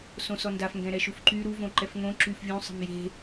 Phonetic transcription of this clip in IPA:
s õ s ɔ n d a f ŋ ɡ ɛ̃ ɾ ɛ ʃ u f ǃ y ɾ u v õ ǃ ɛ f ŋ õ ǁ y f vʲ ũ sˤ ə̤ m j e̤

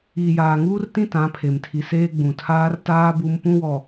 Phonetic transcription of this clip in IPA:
iː˨ j aː˨ ŋ uː˦ r t ĩ˦ t ã˨˦ pʰ e˨ m tʰ i˨ s eː˦ ɡ͡b ũ˨ tʰ aː˦ r t aː˦ b u˦ m p ũ˦ w ɔ˨

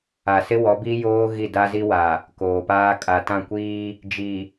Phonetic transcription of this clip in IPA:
a˨ s ɪ˦ w ɔ˨˦ b i˦ j oː˦ ɣ i˦˨ d a˦ z i˦ w a˨ | k oː˨ p aː˦ kʼ a˨ t ã˦˨ kʷ iː˦ | d͡ʒ i˨

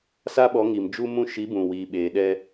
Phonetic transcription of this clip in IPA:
s a˦ ɓ ɔ˨˦ ŋ i˨ m d͡ʒ u˦ m ũ˦ ʃ i˨˦ b ũ˨ w iː˨ ɓ eː˨ ɗ ɛ˦

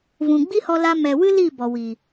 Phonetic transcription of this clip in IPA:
v ũ˨ ɡ͡b i˦ h ɔ˧ l a˧ m ɛ˨ w ɨ˦ l i˦˨ b ɔ˨ w i˨

